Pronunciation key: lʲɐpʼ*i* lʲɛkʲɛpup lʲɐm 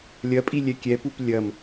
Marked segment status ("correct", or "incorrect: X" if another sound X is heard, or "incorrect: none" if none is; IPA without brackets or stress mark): correct